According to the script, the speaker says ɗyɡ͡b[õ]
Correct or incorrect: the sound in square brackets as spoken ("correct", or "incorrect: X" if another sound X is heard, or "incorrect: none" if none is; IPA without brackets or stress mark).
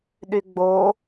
incorrect: o